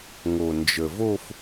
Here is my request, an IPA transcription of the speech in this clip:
ŋ o˩ n d͡ʒ ə˩ v o˥˧ f

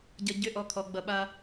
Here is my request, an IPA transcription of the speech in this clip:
ɟ ʌ˧ ɟ ʏ˧˥˧ ʔ ɔ˧ kʰ ɔ˧ ɡ͡b ʌ˧ ɓ a˧

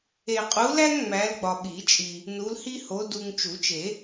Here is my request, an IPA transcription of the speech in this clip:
e˨ qʼ u˨˦ l æ˦ ŋ ŋ͡m æ˨˦ l ɡ͡b ɒ˨ ɓ i˨˩˦ t͡ʃʼ i˨ | n u˨˦ l h i˦ h o˨˦ d u˨ ŋ t͡ʃ u˨˩˦ t͡ʃ e˨˩˦

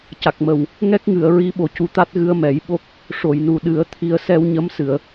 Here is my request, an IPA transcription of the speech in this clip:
c a˨˩ k̚ m ə˨˩ w | ŋ ɛ˦˥ k̚ ŋ ɨ˨˩˨ ə̯ ɹ i˧˥ ɓ o˨˩ c u˧ t̪ a˦˥ t̚ ɣ ɨ˧ ə̯ m ɛ˨˩˦ j ɓ o˦˥ k̚ | ʂ o˨˩˨ j n u˨˩ ɗ ɨ˨˩˦ ə̯ t̪ʰ i˧ ə̯ s ɛ˧ w ɲ ə˧˥ m s ɨ˨˩˨ ə̯

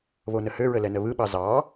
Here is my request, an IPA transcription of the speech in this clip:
β o n ə h ø ɹ ə l ɛ n ə β ɯ ɓ ɑ z ɑ

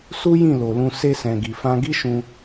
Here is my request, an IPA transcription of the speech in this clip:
s u˦ j ĩ˦˨ l o˨ l ũ˧ s e˧ s ɛ̃˨ ɡ i˨ f ã˧ ɡ i˦ ʃ ũ˧

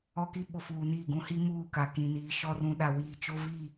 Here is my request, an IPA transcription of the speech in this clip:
ɔ˦ k i˦ ɓ o˨ f uː˨ n iː˦˨ ɡ ũ˦ h i˦ m uː˦˨ k a˨ k ĩ˨ n iː˨ ʃ ɔ˦ r ũ˨ ɗ a˨ w iː˨ t͡ʃ o˦ v i˦˨

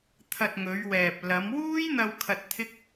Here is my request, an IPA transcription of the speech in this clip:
t̪ʰ ɐ˧ t̚ ŋ ɵ˨˧ ɥ w ɛː˨ p̚ l ɐ˨˧ m w uː˥ j n̪ ɐ˧ w kʰ ɐ˧ t̚ t̪ʰ ɪ˥ k̚

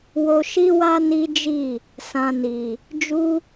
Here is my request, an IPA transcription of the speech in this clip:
w o˧ ʃ i˦ w a˦ n i˦ d͡ʒ i˦˨ | s ã˧ n i˨ | d͡ʒ u˦

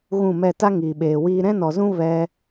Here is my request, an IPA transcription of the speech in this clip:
ɣ ũ˦˨ m ɛ˦˨ t a˦ ŋ iː˨ ɓ eː˨ w iː˦ ɾ ɛ̃˦ n ɔ˨ z ũ˦ v ɛ˧

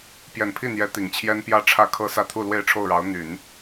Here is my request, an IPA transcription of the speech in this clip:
p j ɛ˨˩ n pʰ i˥˩ n̪ j ɛ˧˥ t̪ i˨˩ ŋ t͡ɕʰ j ɛ˥ n p j ä˥˧ ʈ͡ʂʰ ä˥˩ kʰ ɤ˥ s ä˥˧ t̪ʰ u˥˧ l w e˥˧ ɪ̯ ʈ͡ʂʰ o˥˩ ʊ̯ ɻ ɑ˧˥ ʊ̯ n̪ y˨˩˦ n

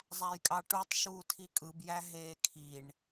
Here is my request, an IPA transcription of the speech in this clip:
zˤ æ j kʼ ɑ ʈ u tˤ ʃ uː tʰ i kʼ ɯ b j æ ɦ eː kʰ i ɳ

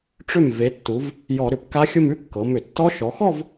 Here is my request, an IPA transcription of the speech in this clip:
ʈ͡ʂ ʏ˥˩ m v e˩˧ tː u˩˧ v | j ɔ˧˩˧ ɾ ʏ˧˩˧ p k a˦˥ xʲ ʊ˥˧ m ʉ˦˥ kː ɤ˩˧ m ʏ˧˩˧ tː ɔ˦˥ ʃ ɔ˩˧ x ɔ˥˧ v

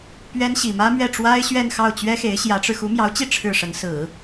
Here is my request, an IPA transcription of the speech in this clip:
p ɥ ɛ˥ n ɕ i˨˩ m ä˥ m ɥ ɛ˥˩ ʈ͡ʂ w a˥ ɪ̯ ɕ ɥ ɛ˥˧ n x ɑ˥˩ ʊ̯ t͡ɕ ɥ ɛ˥ x e˧˥ ɪ̯ ɕ j ä˧˥ ʈ͡ʂ ɻ̩˧ x u˧˥ m j ɑ˧˥ ʊ̯ t͡ɕ i˥˧ ʈ͡ʂʰ ɻ̩˥˩ ʂ ə˧˥ n s ɹ̩˨˩˦

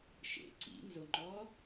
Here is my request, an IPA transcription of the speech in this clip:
ʃ ḛ ǀ ḭ n z ʊ ŋ͡ǃ ɔ

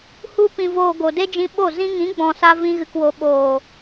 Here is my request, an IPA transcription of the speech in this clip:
h u˧ p ĩ˨ v oː˨ ɡ o˨ d e˦ d͡ʒ ĩ˧ ɓ o˦˨ z ĩ˧ ŋ ĩ˨˦ ɡ͡b ɔ̃˨ s a˧ v ĩ˧ ɣ ɨ˨ k w o˨ ɓ oː˨

